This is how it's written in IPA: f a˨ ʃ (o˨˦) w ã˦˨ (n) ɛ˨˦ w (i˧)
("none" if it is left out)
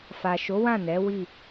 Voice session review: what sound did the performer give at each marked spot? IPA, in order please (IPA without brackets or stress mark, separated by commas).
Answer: o˨˦, n, i˦˨